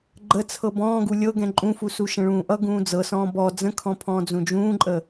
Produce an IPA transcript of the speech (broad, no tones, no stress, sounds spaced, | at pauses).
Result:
ɡ͡ǃ ə t͡sʰ ɤ b ɔ̃ː ɡ u lʲ ɤ ɡ ɛ̃ ǃʼ ũ f u s u ʃ ə̃ ɭ ũː ʔ ʌ ɡ ũː d͡z ɤ s ɔ̃ː b ɔ d͡z ə̃ kʰ ɔ̃ pʰ ɔ̃ː d͡z ũ d͡ʒ ũː ǃʼ ə